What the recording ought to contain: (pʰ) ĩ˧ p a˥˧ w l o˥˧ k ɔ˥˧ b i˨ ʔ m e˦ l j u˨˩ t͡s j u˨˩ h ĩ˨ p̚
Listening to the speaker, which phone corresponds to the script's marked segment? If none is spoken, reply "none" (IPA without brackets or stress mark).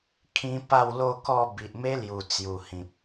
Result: kʰ